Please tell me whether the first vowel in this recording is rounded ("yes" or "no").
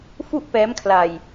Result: yes